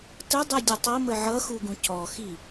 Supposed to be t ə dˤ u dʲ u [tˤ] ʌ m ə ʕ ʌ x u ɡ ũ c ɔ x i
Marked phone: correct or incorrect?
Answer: correct